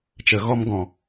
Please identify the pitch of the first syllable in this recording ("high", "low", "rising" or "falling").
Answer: low